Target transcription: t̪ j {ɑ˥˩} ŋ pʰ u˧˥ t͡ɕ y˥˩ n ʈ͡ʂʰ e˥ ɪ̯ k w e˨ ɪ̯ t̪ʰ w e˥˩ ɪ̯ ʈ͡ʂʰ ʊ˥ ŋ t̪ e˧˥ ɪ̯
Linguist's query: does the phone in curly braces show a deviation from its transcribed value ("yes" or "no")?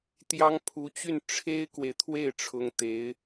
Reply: yes